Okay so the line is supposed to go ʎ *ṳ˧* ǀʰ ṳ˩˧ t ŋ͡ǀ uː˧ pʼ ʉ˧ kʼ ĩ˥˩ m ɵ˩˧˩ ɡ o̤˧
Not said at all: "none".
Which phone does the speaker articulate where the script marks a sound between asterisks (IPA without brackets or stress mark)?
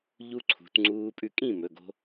u˧